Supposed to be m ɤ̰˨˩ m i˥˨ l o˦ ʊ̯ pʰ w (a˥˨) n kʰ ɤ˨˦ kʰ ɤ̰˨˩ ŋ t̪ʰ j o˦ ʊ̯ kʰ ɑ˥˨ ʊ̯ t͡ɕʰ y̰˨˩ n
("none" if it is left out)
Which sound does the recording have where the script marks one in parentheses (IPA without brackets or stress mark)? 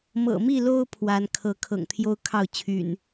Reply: a˨˦